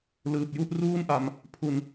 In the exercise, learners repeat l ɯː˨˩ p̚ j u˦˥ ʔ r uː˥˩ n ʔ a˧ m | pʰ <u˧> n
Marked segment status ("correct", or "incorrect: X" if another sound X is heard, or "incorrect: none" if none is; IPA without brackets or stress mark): correct